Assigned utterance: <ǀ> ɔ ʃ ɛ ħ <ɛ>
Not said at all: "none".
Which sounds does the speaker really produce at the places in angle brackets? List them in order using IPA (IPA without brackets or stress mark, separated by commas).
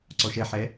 ǀ, ɛ